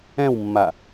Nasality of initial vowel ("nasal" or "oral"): nasal